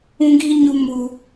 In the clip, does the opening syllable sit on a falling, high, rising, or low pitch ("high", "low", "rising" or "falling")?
high